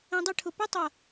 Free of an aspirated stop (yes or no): no